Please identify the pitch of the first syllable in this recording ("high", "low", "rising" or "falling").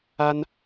high